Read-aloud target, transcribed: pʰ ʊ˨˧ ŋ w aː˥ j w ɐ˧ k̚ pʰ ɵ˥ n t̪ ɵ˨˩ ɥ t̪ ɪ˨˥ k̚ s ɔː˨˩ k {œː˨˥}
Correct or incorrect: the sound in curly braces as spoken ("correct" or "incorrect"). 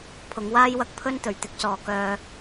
incorrect